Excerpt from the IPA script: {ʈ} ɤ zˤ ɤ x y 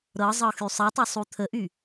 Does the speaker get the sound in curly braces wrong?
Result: yes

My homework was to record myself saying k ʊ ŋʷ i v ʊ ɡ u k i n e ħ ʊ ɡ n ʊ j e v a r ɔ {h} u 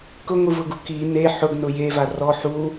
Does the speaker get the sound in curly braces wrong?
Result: yes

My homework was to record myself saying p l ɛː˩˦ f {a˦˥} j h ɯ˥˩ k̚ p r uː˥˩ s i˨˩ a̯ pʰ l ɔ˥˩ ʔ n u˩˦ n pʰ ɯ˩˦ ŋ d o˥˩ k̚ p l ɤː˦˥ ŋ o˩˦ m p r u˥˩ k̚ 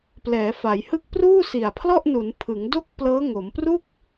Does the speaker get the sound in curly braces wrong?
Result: yes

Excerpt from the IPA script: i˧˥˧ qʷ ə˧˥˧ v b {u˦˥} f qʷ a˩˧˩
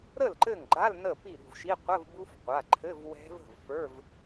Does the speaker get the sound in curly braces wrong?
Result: no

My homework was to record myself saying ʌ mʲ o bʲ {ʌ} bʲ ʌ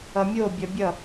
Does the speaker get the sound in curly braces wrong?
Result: no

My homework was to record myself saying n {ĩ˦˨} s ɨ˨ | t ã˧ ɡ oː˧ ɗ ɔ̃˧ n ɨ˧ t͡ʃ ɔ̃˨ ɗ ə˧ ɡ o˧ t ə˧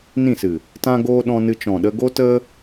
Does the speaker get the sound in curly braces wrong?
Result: no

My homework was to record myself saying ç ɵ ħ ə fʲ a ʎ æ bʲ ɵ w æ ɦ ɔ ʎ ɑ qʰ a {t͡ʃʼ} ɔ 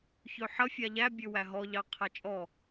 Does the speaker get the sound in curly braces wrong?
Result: no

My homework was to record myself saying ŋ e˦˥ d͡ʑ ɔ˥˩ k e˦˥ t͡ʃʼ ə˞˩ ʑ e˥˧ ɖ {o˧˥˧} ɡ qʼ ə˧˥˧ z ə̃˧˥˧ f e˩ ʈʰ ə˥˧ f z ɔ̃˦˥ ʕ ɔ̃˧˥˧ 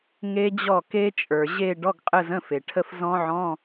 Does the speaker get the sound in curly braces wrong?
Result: yes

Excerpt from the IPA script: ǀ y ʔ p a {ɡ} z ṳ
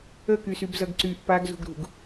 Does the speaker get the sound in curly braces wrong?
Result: no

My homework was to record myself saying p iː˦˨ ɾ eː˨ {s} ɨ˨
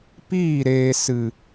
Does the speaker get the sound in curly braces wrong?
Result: no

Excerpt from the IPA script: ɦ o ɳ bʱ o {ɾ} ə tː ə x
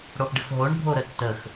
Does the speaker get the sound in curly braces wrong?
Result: no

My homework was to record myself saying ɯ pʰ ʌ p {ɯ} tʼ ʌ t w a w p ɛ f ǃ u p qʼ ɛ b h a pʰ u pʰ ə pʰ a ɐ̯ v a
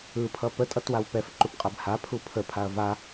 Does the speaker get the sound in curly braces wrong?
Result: yes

